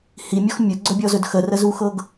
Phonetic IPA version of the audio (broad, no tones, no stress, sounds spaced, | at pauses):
h i mʲ ɔ x mʲ ɵ ɡ͡ǀ ɵ bʲ ɔ z ɵ d x ə r ə z u x ɤ ɡ